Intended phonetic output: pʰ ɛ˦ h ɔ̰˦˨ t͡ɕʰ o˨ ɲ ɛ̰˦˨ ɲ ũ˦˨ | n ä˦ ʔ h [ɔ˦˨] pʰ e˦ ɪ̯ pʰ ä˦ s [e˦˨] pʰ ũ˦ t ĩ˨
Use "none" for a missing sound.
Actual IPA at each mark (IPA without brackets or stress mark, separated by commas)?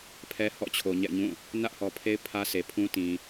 ɔ˨, e˨